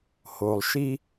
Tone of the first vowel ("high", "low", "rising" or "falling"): low